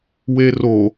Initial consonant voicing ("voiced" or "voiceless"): voiced